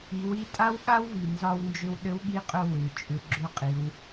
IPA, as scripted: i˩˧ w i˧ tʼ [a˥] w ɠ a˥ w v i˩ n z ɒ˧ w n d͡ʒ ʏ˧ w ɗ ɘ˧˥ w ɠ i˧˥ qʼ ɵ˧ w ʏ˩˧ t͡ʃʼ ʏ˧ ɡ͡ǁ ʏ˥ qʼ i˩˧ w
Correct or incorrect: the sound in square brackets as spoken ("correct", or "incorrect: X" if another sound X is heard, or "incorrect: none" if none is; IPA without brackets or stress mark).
correct